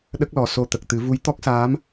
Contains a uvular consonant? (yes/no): no